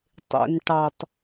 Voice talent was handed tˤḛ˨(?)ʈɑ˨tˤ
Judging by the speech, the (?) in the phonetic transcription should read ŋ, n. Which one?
n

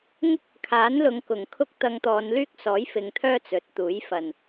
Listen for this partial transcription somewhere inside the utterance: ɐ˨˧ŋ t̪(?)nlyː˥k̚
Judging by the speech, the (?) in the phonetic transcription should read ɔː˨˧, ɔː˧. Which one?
ɔː˨˧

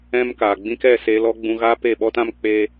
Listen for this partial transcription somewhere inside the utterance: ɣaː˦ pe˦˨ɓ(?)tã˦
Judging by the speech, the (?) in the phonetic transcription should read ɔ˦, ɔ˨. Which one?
ɔ˦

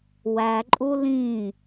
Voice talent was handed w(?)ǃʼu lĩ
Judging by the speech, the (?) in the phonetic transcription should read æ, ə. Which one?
æ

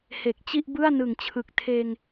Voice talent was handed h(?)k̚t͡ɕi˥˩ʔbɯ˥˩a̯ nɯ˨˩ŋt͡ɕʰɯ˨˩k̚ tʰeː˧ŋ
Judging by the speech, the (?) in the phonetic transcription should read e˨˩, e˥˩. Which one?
e˨˩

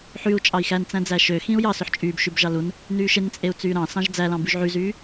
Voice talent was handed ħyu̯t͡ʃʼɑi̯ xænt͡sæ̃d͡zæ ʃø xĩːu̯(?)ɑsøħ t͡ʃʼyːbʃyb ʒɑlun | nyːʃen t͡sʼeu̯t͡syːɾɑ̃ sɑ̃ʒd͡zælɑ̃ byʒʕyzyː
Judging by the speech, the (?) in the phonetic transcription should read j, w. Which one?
j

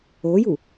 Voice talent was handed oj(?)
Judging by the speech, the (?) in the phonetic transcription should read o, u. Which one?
u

